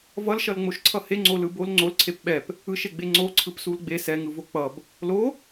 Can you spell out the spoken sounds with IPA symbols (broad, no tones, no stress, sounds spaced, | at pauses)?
v ʌ l ʃ ʌ l ŋ͡m o ʃ ǀʰ ʌ h e ŋ͡ǀ o l ɯ b o l ŋ͡ǀ o l ǀʰ e p ɓ ɛ p | ɯ ʃ e ɡ͡b e ŋ͡ǀ o ǀʰ ɯ p s u l ɡ͡b e s ɛ ŋ ɯ v o k͡p ʌ b | l o